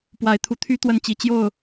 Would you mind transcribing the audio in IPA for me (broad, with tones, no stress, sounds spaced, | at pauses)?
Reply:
p w a˨˦ ɪ̯ t̪ʰ u˨˦ t̪ʰ y˦ t̪ w ə˦ n t͡ɕ i˨˦ t͡ɕ j o˥˨ ʊ̯